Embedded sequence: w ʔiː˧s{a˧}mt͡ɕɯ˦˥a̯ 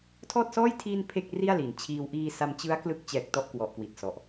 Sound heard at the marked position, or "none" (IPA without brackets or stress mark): a˧